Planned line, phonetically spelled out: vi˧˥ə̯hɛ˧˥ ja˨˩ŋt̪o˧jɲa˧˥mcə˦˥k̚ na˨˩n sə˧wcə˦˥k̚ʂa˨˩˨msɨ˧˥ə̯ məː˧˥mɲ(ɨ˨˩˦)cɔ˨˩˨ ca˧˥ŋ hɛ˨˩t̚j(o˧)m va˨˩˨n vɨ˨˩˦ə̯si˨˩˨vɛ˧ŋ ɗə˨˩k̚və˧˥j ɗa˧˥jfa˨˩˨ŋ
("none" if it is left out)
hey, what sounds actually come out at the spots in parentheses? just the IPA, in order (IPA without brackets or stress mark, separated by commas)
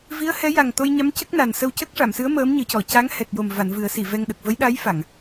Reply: ɨ˨˩˦, o˨˩